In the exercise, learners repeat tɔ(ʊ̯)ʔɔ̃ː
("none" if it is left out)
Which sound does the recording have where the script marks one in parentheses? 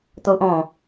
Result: ʊ̯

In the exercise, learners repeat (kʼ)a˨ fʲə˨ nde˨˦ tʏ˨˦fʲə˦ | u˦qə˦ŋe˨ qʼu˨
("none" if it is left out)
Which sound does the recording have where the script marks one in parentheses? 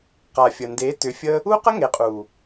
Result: q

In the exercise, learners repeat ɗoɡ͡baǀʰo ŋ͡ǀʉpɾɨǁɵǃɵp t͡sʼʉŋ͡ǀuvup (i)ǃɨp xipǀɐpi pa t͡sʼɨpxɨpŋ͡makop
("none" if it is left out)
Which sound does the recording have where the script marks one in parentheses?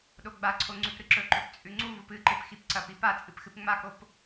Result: ɨ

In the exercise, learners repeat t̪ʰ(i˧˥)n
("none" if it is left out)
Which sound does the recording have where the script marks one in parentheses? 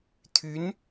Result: y˧˥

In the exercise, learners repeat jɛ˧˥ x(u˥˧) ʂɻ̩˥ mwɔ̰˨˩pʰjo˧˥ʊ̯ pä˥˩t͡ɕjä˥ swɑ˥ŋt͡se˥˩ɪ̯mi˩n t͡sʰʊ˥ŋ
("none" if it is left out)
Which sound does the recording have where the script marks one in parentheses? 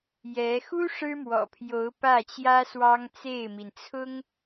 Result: u˥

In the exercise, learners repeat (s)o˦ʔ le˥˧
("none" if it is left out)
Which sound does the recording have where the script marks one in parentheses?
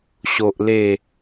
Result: ɕ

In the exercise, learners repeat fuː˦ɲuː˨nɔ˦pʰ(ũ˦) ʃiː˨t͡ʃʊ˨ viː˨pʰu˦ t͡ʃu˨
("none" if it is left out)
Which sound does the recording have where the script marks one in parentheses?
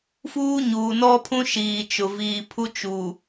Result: ũ˦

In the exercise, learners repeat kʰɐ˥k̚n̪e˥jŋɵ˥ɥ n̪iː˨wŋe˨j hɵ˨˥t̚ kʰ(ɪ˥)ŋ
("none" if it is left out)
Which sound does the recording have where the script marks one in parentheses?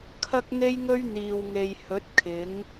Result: ɪ˨˥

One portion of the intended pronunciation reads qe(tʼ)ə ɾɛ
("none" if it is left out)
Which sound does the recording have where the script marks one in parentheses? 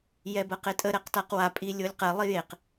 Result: tʼ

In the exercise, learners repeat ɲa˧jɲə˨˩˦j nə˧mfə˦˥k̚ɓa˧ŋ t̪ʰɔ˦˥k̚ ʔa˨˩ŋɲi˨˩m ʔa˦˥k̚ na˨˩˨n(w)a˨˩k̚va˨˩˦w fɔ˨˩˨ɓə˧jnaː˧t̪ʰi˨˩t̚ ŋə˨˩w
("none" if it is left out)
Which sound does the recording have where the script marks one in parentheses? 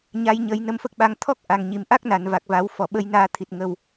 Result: v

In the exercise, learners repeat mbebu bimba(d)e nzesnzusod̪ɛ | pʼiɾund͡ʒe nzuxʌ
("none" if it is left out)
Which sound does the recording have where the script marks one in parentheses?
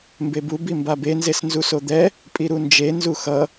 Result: b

